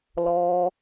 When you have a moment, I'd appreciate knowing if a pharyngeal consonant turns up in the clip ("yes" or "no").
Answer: no